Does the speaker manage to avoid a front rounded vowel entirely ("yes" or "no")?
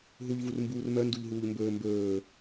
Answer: no